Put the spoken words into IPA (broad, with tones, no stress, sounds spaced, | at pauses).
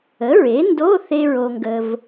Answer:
ə˩˥ ɹ e˩˥ n d o˧˥˧ θ e˥ ɹ o˧ ŋ ɡ ə˧ v